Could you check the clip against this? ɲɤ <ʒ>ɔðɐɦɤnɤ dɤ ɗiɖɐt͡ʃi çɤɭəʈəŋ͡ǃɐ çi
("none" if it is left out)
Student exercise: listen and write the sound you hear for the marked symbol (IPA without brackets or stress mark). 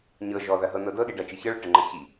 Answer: ʒ